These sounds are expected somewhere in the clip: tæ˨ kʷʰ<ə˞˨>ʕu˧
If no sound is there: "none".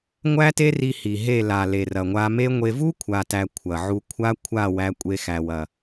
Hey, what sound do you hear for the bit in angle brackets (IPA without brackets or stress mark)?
ɐ˨